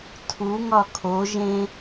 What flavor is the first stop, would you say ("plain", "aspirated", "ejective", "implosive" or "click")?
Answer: aspirated